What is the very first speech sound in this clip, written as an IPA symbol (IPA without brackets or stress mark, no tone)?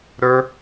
ɾ